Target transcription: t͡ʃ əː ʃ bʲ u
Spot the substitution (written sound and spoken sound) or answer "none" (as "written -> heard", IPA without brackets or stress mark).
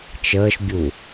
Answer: none